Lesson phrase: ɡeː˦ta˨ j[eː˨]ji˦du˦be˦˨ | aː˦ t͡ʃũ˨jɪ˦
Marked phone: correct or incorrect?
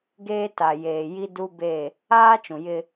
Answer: correct